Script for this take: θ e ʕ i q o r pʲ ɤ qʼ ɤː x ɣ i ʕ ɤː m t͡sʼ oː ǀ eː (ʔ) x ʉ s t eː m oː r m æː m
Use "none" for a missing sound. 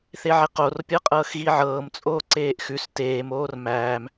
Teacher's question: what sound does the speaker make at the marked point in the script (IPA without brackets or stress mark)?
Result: ʔ